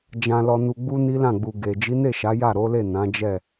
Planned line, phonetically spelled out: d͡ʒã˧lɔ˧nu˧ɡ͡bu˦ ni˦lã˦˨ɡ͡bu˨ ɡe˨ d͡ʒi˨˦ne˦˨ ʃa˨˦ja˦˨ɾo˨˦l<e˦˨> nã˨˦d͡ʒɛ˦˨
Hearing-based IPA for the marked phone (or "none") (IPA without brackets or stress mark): e˦˨